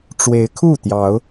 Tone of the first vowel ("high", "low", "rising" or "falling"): rising